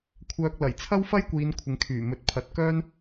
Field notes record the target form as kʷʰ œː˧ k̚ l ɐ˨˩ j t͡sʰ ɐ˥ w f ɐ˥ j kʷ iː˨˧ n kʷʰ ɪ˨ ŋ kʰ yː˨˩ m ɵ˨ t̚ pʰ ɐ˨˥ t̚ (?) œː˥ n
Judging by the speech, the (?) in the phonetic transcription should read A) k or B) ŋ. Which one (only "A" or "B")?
A